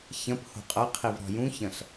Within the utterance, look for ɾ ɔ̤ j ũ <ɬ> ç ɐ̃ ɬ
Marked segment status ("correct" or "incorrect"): incorrect